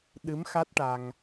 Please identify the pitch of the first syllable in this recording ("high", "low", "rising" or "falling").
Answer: rising